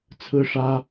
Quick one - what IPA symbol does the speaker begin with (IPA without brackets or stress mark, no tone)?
t͡sʰ